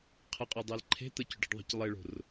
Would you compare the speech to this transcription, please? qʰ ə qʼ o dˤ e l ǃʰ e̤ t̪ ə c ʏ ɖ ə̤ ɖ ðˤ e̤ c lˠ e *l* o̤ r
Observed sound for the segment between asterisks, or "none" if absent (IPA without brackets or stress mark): ɭ